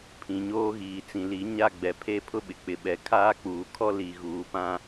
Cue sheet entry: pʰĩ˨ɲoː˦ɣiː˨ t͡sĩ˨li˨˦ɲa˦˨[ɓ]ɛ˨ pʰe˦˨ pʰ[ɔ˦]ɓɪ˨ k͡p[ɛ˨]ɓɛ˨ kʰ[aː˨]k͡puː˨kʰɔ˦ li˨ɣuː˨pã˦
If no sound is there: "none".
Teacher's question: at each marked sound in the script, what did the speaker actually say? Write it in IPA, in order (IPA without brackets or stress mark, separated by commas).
ɡ͡b, ʊ˦, ɪ˨, aː˦